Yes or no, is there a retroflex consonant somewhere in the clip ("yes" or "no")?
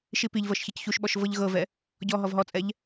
no